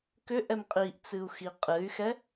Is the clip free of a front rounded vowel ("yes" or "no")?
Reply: no